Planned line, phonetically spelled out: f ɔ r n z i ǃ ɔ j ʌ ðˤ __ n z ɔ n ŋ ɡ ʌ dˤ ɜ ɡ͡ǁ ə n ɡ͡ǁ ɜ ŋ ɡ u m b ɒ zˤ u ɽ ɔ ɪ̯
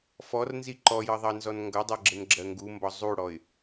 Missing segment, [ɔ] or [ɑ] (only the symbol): ɑ